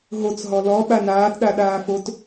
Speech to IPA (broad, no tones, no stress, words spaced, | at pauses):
ɦot͡sɦɔ lɔ ɓanaːtɗa ɗaːfot